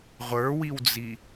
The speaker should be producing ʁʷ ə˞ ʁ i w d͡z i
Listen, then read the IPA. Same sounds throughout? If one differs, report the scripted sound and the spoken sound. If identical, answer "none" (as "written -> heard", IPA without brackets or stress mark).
ʁ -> w